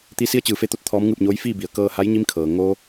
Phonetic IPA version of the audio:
t̪ i˧˥ s i˧˥ ə̯ t͡ɕ ɯː˩˧ f e˧ t̪ o˧˥ t̚ t̪ʰ ɔː˧˥ m ŋ ɯː˥˨ p̚ ɲ oː˧˥ j f iː˥˨ b i˩˧ ə̯ k ɤː˧ h a˧˥ j ɲ i˧˥ m kʰ ɤː˩ ŋ o˧

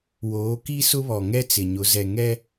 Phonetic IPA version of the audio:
w oː˨˦ k i˦ s ʊ˦ β ɔ˨ ŋ ɛ˦ t͡s ɪ˨ ɲ ʊ˨˦ z ɛ˨ ŋ ɛ˦

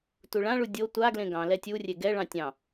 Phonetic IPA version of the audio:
t u ɭ ã ɭ u dʲ o tʷ a ɡ l ẽ ɡ ɑ̃ l ɛ tʲ u rʲ e ɡ ɛ ɭ ɑ̃ tʲ ɑ̃

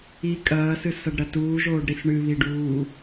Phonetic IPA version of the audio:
i kʼ ɐː s ɨ s ɐ ɖ ɾ ɐ t uː ʒ oː ɖ ɾ i s ɳ ɨ β i ɖ uː

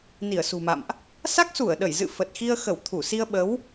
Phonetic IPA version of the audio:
n i˧˩ ə̯ s ṳ˨˩ m a̰˧˨ m ʔ | s a˦˥ k̚ s u˧˩ ə̯ ɗ ə˧˩ j z ɨ̰˧˨ f ə˨˩ t̚ x i˧ ə̯ x ə˧˩ w t̪ʰ u˧˩ s i˧ ə̯ ɓ ə˨˦ w

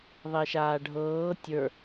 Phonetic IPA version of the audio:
ðˤ e ʃ aː ɖʱ ɤː tʲ ə˞

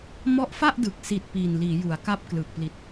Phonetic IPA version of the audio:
m ɔ˦˥ ʔ f a˥˩ ʔ d ɯ˨˩ k̚ s i˨˩ t̚ p iː˨˩ n l iː˩˦ j u˩˦ a̯ k a˦˥ p̚ k l ɯː˨˩ k̚ p l i˨˩ t̚

